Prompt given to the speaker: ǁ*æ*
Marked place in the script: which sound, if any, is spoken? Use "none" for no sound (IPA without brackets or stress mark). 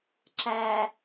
æ